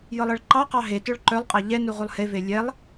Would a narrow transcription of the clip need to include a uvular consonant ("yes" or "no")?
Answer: yes